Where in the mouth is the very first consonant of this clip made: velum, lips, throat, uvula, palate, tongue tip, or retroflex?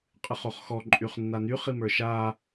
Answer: uvula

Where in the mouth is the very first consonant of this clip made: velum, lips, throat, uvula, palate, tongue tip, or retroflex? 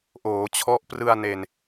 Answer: throat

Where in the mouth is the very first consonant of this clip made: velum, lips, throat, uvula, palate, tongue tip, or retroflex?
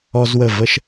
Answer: tongue tip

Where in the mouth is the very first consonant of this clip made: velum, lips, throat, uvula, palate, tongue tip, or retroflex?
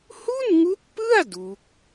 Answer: throat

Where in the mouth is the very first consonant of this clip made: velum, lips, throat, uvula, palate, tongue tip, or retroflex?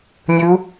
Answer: tongue tip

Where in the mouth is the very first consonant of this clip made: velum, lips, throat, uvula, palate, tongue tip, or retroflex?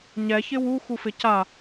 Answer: palate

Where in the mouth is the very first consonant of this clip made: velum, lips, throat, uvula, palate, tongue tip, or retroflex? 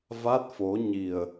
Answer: lips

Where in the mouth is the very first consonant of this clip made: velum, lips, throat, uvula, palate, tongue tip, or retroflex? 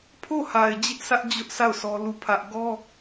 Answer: lips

